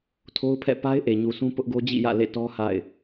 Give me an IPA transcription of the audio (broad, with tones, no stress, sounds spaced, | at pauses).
tʰ o˦ ʊ̯ pʰ ɛ̰˦˨ p a˦ ɪ̯ ʔ e˨ ɲ u˨ sʰ ũ˦ p ʊ˦ ʔ ɡ o˦ d͡ʑ ḭ˦˨ j ä̰˦˨ l ḛ˦˨ t ɔ˦ h a̰˦˨ ɪ̯